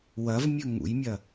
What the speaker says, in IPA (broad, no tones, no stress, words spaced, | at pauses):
wɐvmʲɵ ŋṵjmʲɐ